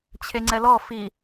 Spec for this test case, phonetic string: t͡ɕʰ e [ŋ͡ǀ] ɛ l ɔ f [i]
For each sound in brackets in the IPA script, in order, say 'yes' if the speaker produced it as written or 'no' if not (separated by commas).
yes, yes